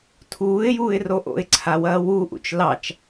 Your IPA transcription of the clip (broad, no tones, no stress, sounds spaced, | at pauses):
tʰ uː ɪ̯ j uː ɪ̯ r o ʔ o̰ ɪ̯ ǀʰ a w ɐː w u ʔ ṵ t͡ʃ l ɑ t͡ʃ